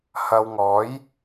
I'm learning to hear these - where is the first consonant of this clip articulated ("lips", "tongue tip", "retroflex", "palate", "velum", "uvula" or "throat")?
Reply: throat